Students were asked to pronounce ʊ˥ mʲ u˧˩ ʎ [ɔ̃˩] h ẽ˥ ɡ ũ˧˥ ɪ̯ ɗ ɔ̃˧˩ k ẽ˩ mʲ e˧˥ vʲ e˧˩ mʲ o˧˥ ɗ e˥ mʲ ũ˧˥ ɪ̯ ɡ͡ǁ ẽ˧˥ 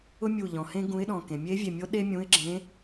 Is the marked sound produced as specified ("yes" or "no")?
yes